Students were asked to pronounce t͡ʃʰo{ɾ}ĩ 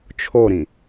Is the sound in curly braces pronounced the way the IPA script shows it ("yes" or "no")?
yes